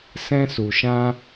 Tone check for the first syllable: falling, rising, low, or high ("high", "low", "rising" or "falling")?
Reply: high